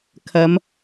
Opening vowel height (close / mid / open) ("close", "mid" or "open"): open